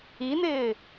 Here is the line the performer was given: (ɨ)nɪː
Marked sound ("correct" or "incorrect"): incorrect